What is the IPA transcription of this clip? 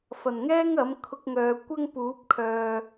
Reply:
f ɐ˨˩ n ŋ ɛː˥ ŋ ɐ˨˥ m kʰ ʊ˧ k̚ ŋ œː˨ kʷ ɐ˥ ŋ p uː˨˥ p̚ kʰ œː˨

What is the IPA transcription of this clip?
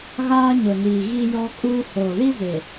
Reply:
ɣ aː˦ ɲ ʊ˨ n iː˨ ɣ i˦ j ɔ˦ kʼ uː˦ h oː˨ l i˦ z e˨

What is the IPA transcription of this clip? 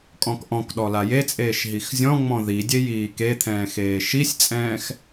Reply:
kʼ ɔ̃ k ʔ ɔ̃ k ɗ ɔ l a j e t͡sʼ eː ʃ ɦ i x zʲ ɔ̃ ŋ͡m ɔ̃ ð i dʲ e j iː k e t̪ʰ ɛ̃ː x eː ʃ i sʲ t͡sʼ ɛ̃ː x

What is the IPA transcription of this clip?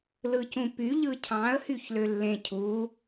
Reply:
l ɯ c ũ p y ʎ ɯ cʰ ɑ̃ ə̯ h y ç l ø lː ẽ cʰ u

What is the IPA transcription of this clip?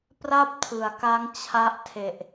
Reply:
p r a˥˩ p̚ tʰ ɯ˩˦ a̯ k a˦˥ ŋ t͡ɕʰ a˦˥ ʔ tʰ e˨˩ ʔ

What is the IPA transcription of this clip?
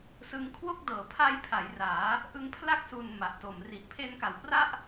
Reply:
s ɯ˧ ŋ kʰ w o˥˩ k̚ d ɤː˩˦ pʰ a˦˥ j pʰ a˩˦ j r aː˩˦ | ʔ ɯ˧ ŋ pʰ l a˥˩ k̚ s u˨˩ n m a˨˩ ʔ t o˨˩ m r i˨˩ ʔ pʰ e˧ n k a˩˦ w p r a˥˩ ʔ

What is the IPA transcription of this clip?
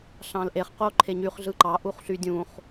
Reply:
ɬ ɑ̃ l ʔ e χ q o ǃʰ e ɲ y χ ɮ ɯ ǃ ɑ ʔ u χ ɬ y dʲ ũ χ

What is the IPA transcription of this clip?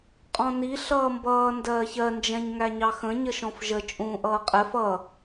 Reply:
qʼ ɔ̃ n i ɬ ʌː m b ʌː n d ɜː ç ɜ n d͡ʒ ɛ̃ ɲ ŋ æ ɲ ɑ x ə̃ ɲ ə ʃ ɔ̃ f ʒ ə t͡ʃʼ ũː ʔ ʌː qʼ ɛ f ʌ

